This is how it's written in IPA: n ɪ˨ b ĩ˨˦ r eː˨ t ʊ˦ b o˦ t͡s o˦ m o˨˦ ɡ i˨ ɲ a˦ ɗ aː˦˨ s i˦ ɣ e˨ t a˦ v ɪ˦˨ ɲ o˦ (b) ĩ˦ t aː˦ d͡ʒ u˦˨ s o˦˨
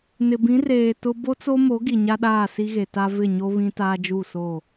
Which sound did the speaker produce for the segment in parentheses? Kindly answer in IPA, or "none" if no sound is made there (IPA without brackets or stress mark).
β